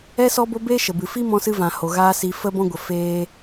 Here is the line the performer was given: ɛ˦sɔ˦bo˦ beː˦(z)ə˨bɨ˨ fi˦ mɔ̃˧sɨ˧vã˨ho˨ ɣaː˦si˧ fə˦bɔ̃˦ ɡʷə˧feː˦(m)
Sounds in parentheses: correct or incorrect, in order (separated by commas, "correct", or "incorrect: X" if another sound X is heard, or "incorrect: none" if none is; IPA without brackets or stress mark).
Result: incorrect: ʃ, incorrect: none